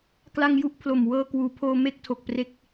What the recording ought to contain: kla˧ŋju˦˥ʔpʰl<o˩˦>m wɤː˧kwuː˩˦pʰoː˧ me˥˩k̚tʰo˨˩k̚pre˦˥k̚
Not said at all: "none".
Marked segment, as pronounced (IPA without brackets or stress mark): o˨˩